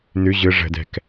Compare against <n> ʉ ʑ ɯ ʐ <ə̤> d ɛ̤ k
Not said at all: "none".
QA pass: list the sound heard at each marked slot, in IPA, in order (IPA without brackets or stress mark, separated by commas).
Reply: n, ə̤